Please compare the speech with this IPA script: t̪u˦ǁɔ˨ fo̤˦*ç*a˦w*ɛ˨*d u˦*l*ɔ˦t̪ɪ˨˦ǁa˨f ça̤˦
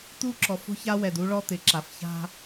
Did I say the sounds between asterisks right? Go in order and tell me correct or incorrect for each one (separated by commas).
correct, correct, incorrect